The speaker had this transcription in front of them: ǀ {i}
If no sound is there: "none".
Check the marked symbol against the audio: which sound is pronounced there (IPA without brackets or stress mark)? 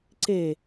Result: e